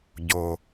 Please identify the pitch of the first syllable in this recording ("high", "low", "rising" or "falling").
low